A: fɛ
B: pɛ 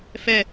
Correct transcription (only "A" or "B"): A